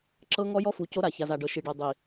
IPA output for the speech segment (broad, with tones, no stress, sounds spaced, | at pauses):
ǁ ɤ˦ ŋ ɔ˦ j ɔ˦ f u˨ c o˦ ɾ a˨ ç a˨ z a˨ ɖ ɤ˨ ʃ i˨ ɖ e˨ dˤ i˨